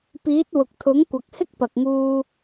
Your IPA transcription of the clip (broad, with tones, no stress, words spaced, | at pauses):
piː˨˥t̚ wʊ˨k̚t̪ʰʊ˨˥ŋkʷɐ˨k̚ hɪ˥k̚pɐ˨k̚ŋuː˧